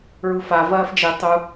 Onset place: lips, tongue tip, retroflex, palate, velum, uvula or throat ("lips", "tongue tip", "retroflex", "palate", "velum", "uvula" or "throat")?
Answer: tongue tip